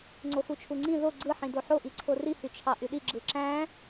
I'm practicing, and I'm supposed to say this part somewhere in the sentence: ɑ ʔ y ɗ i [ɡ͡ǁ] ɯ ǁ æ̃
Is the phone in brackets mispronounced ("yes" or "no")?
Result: no